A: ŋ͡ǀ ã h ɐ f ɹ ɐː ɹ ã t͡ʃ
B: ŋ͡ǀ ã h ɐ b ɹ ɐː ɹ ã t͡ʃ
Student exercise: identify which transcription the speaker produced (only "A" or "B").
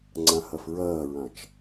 A